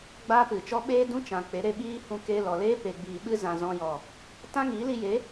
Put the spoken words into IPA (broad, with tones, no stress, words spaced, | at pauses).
ɡ͡baː˦pɨ˨t͡ʃɔ˦ ɓeː˦dũ˦t͡ʃã˨ k͡pe˨˦ɾe˧ɓiː˦ hũ˧ke˧ lɔ˨leː˦ pe˨ɡ͡biː˨ɓɨ˧zã˨ zɔ̃˧jɔ˨ | tã˦ŋiː˨˦li˧je˨˦